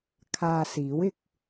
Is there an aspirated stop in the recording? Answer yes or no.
yes